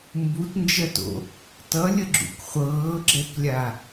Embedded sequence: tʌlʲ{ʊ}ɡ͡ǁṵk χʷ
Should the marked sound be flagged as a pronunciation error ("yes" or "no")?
yes